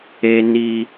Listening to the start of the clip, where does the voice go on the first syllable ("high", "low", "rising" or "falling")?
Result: high